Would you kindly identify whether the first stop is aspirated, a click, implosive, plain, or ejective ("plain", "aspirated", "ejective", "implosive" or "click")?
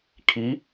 aspirated